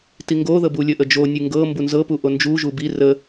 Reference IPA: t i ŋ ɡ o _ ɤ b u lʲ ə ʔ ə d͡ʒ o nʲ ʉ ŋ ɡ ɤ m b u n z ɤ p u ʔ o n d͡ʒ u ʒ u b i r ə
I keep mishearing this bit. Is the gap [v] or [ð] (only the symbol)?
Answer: ð